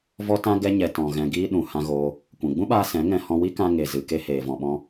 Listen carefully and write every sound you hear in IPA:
v ɔ˦ t ã˦ ɡ ɛ˦ ɲ ɛ˧ t ɔ̃˨ ɣ ɛ̃˧ ɡ iː˦ ɗ ũ˨ h ã˧ ɣ oː˧ | kʷ ɛ̃˨ ɡ͡b ũ˦ ɓ aː˧ s ɛ̃˨˦ ŋ ɛ̃˧ h ɔ̃˧ w i˦ k ã˧ ŋ e˨ z ɨ˨ k e˧ h eː˨ v ɔ̃˨ ɓ ɔ̃˧

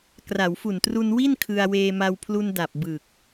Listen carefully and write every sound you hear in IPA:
k r a˩˦ w f u˨˩ n t r u˧ n w i˥˩ n kʰ ɯ˧ a̯ w eː˧ m a˧ w pʰ l u˧ n d a˨˩ p̚ b ɯ˨˩ k̚

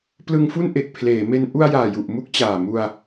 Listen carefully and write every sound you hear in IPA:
p l ɯ˧ ŋ f u˥˩ n ʔ e˨˩ k̚ pʰ l eː˩˦ m e˧ n ʔ u˧ a̯ j aː˨˩ j u˨˩ ʔ m u˦˥ k̚ t͡ɕ aː˨˩ m u˧ a̯

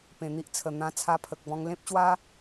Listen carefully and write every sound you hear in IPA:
p ẽ˨˩ n̪ i˦ ʔ t͡sʰ ə˨˩ n̪ ã˧ t͡sʰ a˧ pʰ ə˨ k̚ b ɔ̃˧ ŋ l ẽ˦ p̚ ɕ w a˦

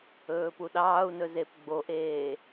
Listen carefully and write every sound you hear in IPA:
ɵː p u ɗ ɑː u̯ n ɵ z e p ɡ͡b o ʔ eː

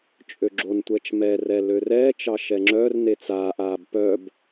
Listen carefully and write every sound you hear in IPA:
t͡ʃʼ ø ɡ͡ǁ o n tʷ ɛ t͡ʃ m ɛ r ɛ l ø r ɛː t͡ʃ ɑ ʃ ɛ ŋ͡ǁ œ r n e t͡s aː ʔ aː b p œ b

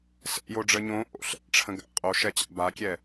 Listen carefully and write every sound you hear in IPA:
s ɛ̰ j o ɖ͡ʐ ə ɲ õ ʔ o̰ ɬ ɛ̰ ʈ͡ʂʰ ə̃ ɡ a̰ qʼ o ʃ ɛ t͡ɕ a̰ b a kʲ ɛ

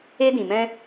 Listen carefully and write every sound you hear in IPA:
e˧ d ĩ˨ m ɛ̃˧

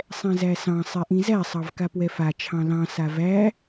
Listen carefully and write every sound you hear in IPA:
sˤ ɛ̃ z æ s ɑ̃ sˤ ɛ ʔ ĩ z æ sˤ ɑ v k a p w ɛ f a t͡ʃʰ ɑ̃ l ɑ̃ s a v æ

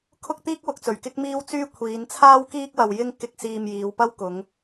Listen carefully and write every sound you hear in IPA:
kʰ ʊ˥ k̚ t̪ iː˥ k̚ w ʊ˨˥ k̚ t͡s ɵ˨˩ ɥ k ɪ˥ k̚ m iː˥ w t͡s yː˥ kʷʰ iː˨˧ n t͡sʰ aː˥ w k iː˥ k̚ w ɐ˧ w j ɪ˥ ŋ k ɪ˧ k̚ s iː˧ m j iː˨˧ w p ɐ˥ w k ʊ˨˧ ŋ

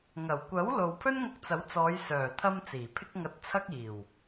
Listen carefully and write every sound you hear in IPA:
ŋ ɐ˨˩ w kʷ ɐ˨˥ w l o˨ w pʰ ɵ˥ n ŋ ʊ˧ k̚ t͡s ɐ˨˥ w t͡s ɔː˨˧ j s œː˨˩ t̪ʰ ɐ˧ m t͡s iː˨˩ pʰ ɪ˥ k̚ ŋ ɐ˧ t̚ t͡sʰ ɐ˥ k̚ iː˨˩ w

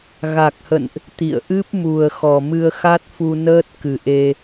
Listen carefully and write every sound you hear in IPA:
ɣ a˨˩ k̚ h ə̰˧˨ n ʔ | t̪ ḭ˧˨ ə̯ ʔ ɨ˦˥ p̚ m u˨˩ ə̯ x ɔ˨˩ m ɨ˧ ə̯ x a˦˥ t̚ f u˧ n əː˦˥ t̚ k ɨ˨˩ ʔ e˧

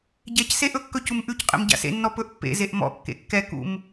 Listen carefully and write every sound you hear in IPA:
ɟ ɛ c s e ʔ ɵ kː ɵ c u m ʔ ʉ c qʼ ḛ m ɟ a̰ s ḛ nː ɔ p ɵ ʔ pː ḛ z e ʔ m ɔ̰ kː ḛ kː ɛ k ṵ m

